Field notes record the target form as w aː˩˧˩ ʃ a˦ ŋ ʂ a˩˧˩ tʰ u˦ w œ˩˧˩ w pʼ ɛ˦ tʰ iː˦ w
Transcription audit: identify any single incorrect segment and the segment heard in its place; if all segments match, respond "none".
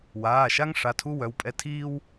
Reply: none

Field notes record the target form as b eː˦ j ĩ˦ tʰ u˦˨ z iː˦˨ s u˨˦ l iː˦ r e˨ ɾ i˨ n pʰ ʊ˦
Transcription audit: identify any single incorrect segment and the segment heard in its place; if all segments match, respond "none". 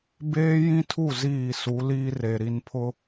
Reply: none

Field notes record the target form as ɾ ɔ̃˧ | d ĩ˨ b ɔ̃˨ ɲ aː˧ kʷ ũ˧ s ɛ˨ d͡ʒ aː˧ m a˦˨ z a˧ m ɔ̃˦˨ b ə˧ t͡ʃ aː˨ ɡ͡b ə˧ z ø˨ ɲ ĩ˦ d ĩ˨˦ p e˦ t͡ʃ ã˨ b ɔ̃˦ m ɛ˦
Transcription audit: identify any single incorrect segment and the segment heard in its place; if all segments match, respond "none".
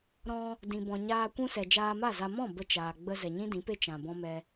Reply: ø˨ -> ɛ˨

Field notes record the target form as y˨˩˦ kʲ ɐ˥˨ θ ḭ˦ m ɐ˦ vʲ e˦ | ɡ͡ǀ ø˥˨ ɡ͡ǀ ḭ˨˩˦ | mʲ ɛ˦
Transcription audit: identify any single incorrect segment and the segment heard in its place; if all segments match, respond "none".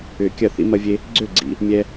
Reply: y˨˩˦ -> ʏ˨˩˦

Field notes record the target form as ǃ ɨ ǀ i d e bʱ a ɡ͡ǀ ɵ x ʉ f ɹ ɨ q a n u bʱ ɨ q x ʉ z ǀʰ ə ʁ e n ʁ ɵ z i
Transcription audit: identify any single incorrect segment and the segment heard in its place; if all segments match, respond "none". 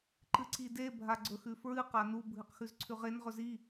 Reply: ə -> ʉ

